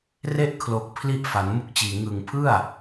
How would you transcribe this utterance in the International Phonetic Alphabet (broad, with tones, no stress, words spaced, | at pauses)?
re˥˩ʔkʰlo˨˩k̚pʰli˦˥ʔ fa˩˦nmu˥˩k̚t͡ɕiː˨˩ ŋɯ˨˩ŋpʰɯ˥˩a̯